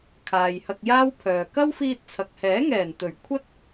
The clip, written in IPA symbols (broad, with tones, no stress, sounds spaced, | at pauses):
kʰ aː˨ j h ɐ˧ k̚ j aː˥ w pʰ œː˨ k ɐ˥ w f iː˧ t̚ t͡sʰ ɐ˨ k̚ h ɛː˨˥ ŋ ɛː˨˩ n t̪ ɵ˨˩ ɥ kʷʰ ɐ˥ t̚